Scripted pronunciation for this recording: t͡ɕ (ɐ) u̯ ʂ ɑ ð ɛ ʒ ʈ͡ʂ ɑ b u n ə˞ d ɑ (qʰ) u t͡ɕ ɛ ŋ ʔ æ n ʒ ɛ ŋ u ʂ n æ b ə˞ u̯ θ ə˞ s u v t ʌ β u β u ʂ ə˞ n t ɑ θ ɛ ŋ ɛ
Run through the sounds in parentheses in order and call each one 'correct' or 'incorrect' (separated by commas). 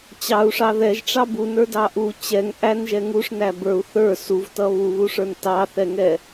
incorrect, incorrect